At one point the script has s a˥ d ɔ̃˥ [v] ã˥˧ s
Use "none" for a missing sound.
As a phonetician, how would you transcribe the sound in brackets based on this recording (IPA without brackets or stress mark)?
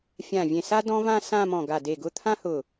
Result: v